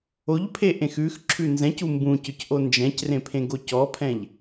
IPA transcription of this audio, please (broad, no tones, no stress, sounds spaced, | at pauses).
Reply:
o ʎ pʰ e ʔ ẽ x ʉ x ǁʰ ʉ n z ɛ̃ c u m b ũ c ʏ c ʔ o n d͡ʒ ɛ̃ c r ẽ pʰ ẽ ɡ o c ɔ pʰ ɛ̃ ʎ